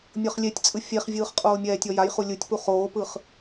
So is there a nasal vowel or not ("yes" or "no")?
no